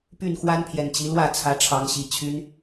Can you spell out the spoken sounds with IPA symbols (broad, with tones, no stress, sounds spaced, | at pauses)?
p y˥˨ n x w a˦ n pʰ j ɛ˨˩ n t͡ɕ i˨˦ l w ä˥˨ t͡sʰ ä˨˦ ʈ͡ʂʰ ɑ˨˦ ŋ ɕ i˨˩ t͡ɕʰ y˦ n